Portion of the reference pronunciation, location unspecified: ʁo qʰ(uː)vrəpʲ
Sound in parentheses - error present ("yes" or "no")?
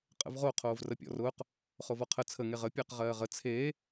yes